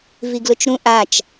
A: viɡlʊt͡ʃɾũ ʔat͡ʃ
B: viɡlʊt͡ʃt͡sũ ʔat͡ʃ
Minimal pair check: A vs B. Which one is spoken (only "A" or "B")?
A